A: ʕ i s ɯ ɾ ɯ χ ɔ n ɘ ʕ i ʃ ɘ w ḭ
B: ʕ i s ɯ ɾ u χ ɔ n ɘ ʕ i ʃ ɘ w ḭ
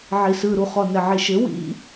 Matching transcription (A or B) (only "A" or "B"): B